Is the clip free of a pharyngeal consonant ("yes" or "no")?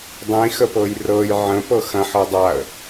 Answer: no